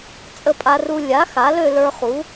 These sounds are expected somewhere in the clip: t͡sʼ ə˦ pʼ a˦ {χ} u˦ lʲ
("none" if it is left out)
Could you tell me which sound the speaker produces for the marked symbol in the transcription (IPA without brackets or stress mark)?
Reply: r